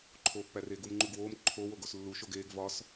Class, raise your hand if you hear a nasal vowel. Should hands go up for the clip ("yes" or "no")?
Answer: no